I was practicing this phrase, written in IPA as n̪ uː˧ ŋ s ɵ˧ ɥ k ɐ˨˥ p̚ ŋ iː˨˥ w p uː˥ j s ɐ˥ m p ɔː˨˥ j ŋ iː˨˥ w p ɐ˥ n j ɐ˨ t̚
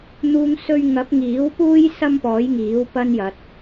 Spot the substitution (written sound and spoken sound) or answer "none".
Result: k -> ŋ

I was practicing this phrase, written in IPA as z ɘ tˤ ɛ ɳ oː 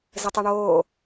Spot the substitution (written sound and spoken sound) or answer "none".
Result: none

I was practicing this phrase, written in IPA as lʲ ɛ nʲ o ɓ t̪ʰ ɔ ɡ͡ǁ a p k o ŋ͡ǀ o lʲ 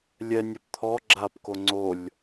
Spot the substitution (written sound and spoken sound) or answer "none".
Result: ɓ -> p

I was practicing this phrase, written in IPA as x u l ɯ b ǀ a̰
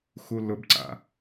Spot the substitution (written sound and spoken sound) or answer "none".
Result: ɯ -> ʊ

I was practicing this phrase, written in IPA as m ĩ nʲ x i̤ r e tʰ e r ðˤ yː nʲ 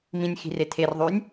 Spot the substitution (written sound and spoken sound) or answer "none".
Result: none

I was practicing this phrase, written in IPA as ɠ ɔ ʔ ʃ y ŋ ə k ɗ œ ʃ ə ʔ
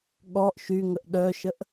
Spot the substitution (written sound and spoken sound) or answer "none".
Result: k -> ʔ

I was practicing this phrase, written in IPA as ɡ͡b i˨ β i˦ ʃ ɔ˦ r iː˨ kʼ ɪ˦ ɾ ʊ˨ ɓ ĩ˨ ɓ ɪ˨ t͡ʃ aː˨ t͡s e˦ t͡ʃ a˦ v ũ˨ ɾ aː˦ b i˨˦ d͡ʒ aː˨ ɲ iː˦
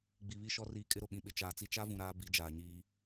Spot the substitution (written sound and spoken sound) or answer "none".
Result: e˦ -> i˦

